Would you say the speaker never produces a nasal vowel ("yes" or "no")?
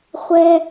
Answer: yes